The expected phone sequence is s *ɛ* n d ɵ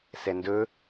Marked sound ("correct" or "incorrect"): correct